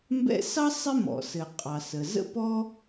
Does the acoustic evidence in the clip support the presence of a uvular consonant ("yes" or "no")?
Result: yes